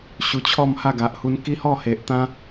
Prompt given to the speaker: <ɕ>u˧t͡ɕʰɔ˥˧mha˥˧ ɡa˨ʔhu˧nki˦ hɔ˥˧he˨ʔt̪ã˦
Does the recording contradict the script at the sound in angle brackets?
no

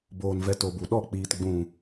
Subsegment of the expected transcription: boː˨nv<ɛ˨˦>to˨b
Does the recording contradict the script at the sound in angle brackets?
yes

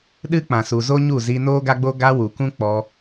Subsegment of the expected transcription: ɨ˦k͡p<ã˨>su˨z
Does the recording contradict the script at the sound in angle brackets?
no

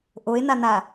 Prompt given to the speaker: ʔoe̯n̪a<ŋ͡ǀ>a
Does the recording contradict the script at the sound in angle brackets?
yes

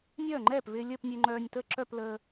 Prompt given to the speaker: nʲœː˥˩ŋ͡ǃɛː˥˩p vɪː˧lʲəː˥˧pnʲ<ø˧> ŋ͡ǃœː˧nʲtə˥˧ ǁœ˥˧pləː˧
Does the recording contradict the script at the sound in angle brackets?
no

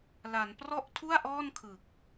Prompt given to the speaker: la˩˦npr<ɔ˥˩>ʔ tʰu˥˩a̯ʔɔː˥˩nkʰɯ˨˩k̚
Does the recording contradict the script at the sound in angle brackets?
no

